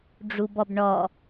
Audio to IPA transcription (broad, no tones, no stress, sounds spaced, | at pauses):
ɖ͡ʐ u b ɔ b ɳ ɔ